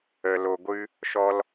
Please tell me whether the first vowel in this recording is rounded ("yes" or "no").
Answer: no